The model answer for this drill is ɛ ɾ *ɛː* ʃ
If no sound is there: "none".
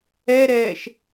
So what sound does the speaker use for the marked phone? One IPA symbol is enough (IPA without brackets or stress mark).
ɛː